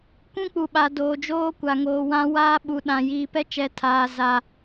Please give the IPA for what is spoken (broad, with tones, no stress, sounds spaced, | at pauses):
kʷ ũ˦ k͡p u˨ ɓ a˨ d oː˨ d͡ʒ oː˦ kʷ a˨ ŋ oː˨ w ã˦ w aː˦ ɓ u˨ ɗ ã˨ j iː˨ p ɛ˦ t͡ʃ ɛ˨ tʰ aː˨ z a˨